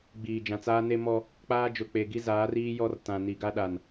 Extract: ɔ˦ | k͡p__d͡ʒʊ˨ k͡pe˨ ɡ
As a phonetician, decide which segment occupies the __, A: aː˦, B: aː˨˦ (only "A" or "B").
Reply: A